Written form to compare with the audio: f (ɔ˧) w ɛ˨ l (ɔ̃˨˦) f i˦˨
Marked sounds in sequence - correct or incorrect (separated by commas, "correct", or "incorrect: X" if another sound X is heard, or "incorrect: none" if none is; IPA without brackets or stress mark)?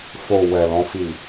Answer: incorrect: o˧, correct